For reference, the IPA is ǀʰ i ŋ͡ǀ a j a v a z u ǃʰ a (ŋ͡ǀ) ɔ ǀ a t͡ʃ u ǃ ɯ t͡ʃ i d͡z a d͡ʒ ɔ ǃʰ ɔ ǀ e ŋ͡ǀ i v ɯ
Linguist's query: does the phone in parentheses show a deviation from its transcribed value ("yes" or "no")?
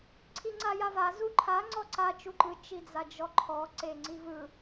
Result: no